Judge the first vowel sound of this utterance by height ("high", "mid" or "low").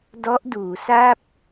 mid